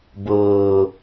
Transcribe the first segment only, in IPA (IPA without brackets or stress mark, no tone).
b